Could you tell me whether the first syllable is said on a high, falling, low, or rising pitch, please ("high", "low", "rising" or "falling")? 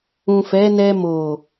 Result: low